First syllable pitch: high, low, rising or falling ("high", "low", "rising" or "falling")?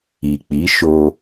low